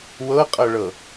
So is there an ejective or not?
yes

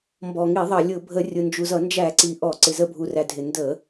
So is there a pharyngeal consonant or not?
no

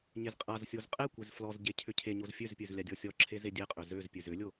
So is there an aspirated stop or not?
yes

